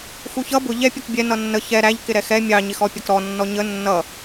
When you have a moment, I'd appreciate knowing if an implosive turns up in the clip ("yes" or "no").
no